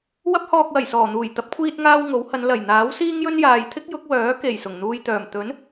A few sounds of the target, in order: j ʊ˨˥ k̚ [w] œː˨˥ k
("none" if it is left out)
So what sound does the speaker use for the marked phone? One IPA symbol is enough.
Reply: w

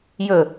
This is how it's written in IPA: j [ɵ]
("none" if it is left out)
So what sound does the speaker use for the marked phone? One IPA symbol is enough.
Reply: ɵ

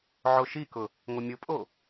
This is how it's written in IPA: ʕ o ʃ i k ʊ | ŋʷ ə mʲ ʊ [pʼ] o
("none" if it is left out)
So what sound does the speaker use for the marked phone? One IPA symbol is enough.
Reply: pʼ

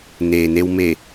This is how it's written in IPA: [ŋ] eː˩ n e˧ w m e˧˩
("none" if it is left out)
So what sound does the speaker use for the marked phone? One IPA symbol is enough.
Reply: n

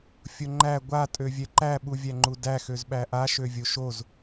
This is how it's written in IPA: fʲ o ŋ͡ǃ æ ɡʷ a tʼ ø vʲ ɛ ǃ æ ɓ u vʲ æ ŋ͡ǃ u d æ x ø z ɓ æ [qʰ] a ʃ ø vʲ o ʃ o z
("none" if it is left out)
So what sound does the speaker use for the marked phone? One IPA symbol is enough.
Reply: ʔ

